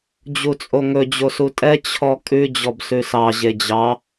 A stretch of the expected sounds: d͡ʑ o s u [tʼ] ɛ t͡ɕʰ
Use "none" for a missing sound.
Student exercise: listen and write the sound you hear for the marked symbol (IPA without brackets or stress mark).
tʼ